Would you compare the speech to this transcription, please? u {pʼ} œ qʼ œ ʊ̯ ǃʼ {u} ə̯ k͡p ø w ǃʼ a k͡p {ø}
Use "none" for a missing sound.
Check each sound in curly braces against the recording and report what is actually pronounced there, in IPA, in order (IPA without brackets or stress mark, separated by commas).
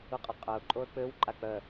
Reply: qʼ, o, œ